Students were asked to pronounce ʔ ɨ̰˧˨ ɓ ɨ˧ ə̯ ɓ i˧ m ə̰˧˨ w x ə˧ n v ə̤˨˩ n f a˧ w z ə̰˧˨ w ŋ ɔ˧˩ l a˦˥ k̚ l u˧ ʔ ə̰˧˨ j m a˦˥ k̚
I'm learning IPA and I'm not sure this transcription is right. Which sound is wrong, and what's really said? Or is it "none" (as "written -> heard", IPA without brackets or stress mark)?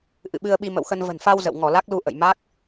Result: none